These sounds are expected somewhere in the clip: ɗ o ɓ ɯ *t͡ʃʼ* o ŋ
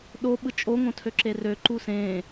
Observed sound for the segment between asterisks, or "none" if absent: t͡ʃʼ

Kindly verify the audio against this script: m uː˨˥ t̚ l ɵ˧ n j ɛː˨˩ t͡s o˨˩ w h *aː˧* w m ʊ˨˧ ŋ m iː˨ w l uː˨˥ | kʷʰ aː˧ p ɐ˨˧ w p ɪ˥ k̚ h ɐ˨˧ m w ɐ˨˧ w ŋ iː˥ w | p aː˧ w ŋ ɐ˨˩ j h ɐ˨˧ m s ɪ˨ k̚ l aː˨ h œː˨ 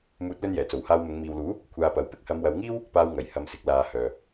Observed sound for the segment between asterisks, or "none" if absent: aː˧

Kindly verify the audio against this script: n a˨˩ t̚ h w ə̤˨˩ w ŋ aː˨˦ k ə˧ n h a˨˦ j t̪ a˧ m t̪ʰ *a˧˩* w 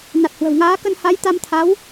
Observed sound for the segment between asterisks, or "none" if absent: a˨˦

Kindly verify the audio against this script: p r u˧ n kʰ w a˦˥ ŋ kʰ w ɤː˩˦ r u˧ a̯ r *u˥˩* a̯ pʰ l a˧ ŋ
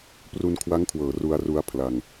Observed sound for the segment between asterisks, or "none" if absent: u˧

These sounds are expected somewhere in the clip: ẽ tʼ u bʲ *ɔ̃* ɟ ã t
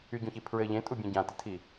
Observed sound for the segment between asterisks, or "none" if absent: ɔ̃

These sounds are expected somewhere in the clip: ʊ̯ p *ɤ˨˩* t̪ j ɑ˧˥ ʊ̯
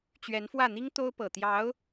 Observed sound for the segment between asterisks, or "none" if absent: ɤ˨˩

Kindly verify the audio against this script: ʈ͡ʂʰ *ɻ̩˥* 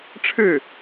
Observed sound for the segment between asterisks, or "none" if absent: ɻ̩˥˩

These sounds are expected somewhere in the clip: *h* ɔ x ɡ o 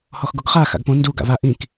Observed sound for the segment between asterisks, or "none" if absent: h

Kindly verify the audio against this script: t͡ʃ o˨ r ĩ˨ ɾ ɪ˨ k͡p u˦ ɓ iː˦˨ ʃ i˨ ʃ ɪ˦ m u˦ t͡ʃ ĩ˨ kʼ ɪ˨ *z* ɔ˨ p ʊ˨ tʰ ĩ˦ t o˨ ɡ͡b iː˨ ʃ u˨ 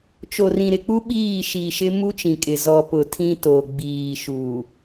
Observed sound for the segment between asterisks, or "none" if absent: z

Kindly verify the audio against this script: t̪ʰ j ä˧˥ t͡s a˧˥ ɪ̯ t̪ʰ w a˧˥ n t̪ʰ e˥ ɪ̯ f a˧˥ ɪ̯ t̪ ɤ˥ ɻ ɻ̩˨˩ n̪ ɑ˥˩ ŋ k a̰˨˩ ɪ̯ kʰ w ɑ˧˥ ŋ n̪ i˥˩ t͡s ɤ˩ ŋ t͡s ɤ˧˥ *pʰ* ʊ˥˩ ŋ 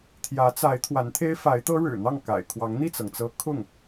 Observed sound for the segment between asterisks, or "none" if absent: kʰ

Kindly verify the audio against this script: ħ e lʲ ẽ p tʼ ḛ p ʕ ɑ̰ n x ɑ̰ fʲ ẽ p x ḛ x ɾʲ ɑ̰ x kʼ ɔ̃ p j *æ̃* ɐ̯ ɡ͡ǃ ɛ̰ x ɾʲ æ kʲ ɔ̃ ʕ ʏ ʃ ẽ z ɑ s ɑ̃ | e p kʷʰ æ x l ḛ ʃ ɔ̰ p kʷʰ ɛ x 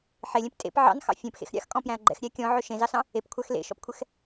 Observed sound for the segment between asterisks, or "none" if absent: æ̃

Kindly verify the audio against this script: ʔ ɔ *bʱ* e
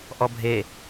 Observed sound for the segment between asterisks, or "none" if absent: bʱ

